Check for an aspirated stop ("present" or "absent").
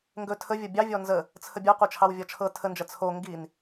present